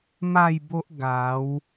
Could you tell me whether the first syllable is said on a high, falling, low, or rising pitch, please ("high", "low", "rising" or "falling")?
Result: falling